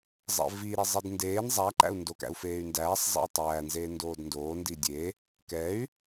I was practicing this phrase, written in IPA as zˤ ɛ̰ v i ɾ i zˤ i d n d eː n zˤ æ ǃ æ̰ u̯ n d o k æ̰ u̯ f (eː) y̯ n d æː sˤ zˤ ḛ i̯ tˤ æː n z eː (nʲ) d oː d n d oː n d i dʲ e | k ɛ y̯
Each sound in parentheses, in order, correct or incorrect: correct, incorrect: n

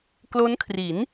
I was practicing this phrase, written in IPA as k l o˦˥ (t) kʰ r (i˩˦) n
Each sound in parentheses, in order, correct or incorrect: incorrect: n, correct

